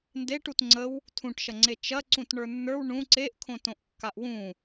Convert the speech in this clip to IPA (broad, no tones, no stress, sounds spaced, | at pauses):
n d e ʈ u t ŋ͡ǀ ə w | tʰ ũ ʈ ʃ ɐ ŋ͡ǀ e t͡ʃ ɐ ǀ ũ t ɳ ə˞ nː ə˞ w ɳ ũ ǀ e ʔ kʰ õ t õ ʔ kː a ʔ w ũ